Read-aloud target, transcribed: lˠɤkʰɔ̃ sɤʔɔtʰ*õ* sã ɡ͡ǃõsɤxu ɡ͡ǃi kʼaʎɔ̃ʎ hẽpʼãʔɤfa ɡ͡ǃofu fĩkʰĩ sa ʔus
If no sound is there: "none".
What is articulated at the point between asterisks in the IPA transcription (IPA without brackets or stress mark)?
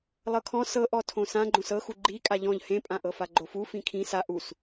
õ